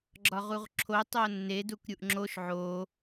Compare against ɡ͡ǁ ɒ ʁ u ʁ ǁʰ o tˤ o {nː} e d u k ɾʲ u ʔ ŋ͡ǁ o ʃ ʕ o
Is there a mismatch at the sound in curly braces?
no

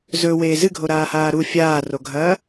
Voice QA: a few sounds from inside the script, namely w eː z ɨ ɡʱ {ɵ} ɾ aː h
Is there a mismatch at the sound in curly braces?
yes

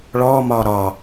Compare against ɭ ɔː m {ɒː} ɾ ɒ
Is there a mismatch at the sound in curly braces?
no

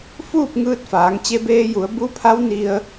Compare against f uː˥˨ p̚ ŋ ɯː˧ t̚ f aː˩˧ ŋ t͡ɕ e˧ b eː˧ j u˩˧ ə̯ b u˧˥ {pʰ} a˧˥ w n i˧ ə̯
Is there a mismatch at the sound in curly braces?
no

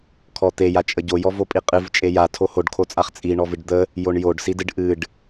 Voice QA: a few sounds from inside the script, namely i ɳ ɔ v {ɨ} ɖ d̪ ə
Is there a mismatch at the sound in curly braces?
no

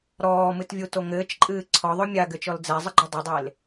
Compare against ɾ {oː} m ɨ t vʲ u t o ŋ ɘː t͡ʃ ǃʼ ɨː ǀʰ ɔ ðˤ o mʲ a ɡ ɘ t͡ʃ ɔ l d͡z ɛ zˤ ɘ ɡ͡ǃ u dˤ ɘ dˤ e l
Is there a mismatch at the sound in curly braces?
yes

